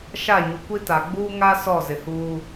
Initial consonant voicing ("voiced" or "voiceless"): voiceless